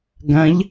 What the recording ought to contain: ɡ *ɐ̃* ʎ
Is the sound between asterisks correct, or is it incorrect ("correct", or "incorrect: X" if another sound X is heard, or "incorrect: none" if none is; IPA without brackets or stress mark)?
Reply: correct